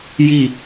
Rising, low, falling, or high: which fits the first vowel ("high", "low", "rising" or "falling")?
falling